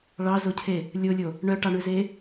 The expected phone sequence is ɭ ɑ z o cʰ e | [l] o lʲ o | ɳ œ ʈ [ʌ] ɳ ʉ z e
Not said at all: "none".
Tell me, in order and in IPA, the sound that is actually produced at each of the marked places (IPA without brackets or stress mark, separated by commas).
lʲ, ɑ